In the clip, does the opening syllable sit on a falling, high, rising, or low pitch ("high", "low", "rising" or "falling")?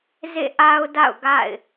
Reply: falling